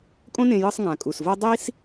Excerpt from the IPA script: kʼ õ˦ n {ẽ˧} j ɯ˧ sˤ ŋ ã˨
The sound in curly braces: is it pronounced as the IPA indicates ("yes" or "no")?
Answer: yes